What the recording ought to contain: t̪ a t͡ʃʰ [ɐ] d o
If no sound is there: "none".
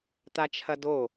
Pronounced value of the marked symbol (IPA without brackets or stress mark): ɐ